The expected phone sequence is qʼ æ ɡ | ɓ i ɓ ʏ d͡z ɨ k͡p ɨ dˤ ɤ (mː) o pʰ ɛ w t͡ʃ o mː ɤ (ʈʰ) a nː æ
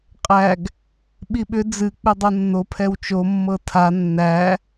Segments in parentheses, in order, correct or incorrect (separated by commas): incorrect, incorrect